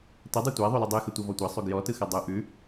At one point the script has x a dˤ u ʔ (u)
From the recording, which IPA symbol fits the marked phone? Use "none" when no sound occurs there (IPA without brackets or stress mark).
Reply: ʉ